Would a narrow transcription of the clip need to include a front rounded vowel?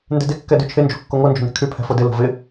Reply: yes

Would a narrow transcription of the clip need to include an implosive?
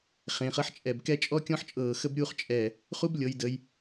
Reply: no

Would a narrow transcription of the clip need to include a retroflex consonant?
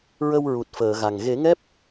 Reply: no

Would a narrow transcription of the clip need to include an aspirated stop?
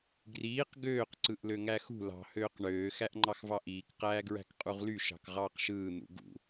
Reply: no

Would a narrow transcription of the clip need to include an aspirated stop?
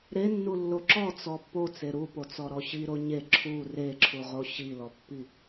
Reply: yes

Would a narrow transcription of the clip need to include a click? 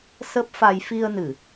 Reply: no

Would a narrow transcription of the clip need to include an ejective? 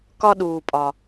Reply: yes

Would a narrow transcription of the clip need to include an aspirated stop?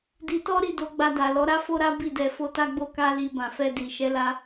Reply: no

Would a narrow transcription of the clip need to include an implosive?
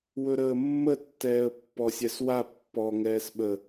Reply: yes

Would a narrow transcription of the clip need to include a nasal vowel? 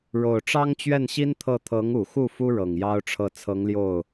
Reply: no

